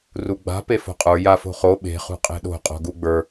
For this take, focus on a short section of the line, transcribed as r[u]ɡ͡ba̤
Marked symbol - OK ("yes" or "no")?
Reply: yes